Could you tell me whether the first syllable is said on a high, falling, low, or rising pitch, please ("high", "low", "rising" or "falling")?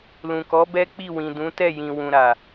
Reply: low